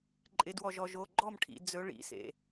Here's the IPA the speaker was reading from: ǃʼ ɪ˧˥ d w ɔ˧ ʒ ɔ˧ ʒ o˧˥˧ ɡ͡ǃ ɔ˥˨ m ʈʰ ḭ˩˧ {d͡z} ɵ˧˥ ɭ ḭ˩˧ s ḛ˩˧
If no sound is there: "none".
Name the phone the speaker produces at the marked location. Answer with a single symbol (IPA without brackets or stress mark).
d͡z